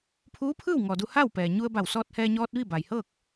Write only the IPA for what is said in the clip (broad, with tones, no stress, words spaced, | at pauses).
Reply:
pʰuː˧˥pʰɯː˥˨wŋɔː˩ du˧ ha˥˨wpɛː˩ ɲu˧ə̯ba˧˩w sɔː˧t̚hɛː˧ɲɔː˧t̚ ʋi˥˨ba˩jhɤː˥˨k̚